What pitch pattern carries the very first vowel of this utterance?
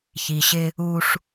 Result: low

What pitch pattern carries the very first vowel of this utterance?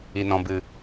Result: low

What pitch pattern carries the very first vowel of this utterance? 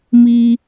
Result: high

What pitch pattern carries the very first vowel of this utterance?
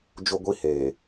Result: high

